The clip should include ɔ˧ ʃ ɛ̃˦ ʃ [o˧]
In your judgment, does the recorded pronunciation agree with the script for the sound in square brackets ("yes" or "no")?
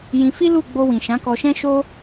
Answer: no